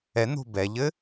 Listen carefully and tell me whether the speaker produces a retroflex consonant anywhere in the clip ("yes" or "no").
no